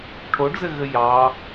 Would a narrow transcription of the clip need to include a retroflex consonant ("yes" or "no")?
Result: yes